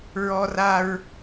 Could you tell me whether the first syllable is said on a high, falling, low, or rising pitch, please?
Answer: high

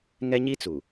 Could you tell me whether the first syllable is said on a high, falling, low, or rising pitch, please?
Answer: high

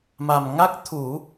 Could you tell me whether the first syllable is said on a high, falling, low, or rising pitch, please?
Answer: low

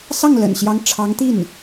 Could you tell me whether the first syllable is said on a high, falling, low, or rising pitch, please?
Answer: falling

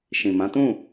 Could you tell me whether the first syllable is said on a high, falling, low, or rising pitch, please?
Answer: low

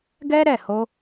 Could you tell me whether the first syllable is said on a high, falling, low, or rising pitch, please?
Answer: high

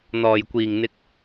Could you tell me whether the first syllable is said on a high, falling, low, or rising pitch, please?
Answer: low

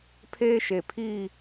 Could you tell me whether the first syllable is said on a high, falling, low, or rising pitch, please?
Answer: high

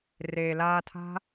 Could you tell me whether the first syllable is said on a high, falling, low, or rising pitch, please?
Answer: low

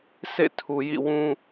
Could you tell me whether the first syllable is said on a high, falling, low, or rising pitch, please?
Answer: falling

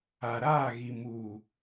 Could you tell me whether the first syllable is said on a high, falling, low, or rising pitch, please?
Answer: low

